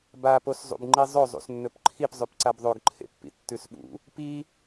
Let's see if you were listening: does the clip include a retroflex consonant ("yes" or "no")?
no